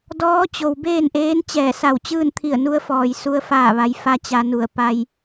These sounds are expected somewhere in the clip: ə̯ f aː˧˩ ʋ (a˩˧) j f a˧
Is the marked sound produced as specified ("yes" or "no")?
yes